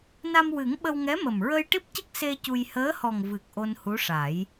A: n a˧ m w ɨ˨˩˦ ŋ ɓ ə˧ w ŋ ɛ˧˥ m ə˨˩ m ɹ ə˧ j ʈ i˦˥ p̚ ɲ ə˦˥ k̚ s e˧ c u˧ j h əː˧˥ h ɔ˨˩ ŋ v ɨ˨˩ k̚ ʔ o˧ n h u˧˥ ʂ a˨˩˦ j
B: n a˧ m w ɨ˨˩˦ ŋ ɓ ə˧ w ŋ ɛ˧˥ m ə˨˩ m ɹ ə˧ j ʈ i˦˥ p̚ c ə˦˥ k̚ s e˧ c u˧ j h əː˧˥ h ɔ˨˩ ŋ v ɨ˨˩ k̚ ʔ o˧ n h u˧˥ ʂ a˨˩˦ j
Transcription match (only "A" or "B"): B